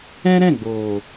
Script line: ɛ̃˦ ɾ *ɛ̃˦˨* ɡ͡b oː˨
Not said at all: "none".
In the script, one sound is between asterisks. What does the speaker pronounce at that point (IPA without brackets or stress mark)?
ɛ̃˦˨